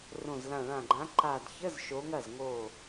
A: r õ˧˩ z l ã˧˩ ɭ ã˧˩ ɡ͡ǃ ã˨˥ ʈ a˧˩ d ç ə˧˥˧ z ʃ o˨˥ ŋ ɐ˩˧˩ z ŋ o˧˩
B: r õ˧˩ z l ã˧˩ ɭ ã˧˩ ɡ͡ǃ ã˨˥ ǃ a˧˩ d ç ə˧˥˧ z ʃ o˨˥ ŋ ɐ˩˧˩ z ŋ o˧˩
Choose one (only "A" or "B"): B